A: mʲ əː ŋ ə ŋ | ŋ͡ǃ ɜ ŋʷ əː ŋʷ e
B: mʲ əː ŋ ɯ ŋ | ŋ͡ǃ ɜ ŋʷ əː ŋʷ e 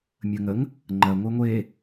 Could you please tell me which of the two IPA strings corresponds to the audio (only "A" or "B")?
A